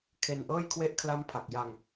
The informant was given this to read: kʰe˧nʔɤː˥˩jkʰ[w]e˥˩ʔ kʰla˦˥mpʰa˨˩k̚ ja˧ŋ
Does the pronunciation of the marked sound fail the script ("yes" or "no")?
no